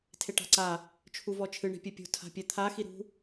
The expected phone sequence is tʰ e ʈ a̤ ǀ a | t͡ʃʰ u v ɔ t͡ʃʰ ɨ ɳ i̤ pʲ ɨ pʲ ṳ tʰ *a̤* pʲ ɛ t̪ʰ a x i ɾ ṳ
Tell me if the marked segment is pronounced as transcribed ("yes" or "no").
yes